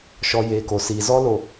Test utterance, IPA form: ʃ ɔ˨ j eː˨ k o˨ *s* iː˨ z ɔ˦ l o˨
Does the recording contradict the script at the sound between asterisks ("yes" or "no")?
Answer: no